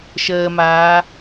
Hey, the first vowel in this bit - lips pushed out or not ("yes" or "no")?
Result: no